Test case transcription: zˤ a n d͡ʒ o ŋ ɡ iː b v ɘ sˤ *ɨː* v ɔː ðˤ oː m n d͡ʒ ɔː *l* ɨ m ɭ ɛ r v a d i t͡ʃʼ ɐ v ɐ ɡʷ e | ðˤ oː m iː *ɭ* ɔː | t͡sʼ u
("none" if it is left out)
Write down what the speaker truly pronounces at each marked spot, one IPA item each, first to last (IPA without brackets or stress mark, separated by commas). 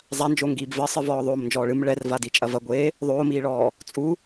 ɨ, ɭ, ɭ